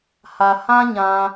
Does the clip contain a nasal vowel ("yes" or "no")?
yes